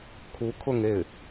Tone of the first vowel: rising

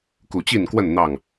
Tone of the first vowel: low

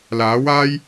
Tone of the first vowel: rising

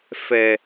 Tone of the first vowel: low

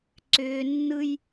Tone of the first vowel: high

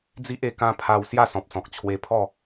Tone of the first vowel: high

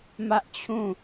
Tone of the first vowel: high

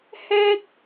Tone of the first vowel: high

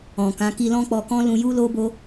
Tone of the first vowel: low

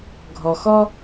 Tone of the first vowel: low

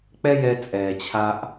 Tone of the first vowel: high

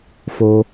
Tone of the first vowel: low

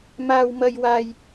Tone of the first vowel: high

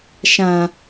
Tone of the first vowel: low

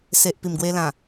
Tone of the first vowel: low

